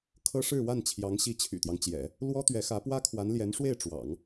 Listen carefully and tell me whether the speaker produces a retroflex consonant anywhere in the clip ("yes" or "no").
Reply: yes